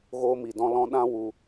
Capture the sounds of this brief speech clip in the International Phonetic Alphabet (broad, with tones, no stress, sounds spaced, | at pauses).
ɣ oː˧ m i˨ d ɔ̃˧ l ɔ̃˧ ɗ ã˦ w u˧